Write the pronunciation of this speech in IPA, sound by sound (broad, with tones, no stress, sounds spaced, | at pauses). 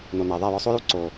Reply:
n o˨ n æ˨ ðˤ æ˦˨ j ɒ˧ sˤ o˦ j u˦ ǀ o˨